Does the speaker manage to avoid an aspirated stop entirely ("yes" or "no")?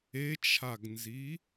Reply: no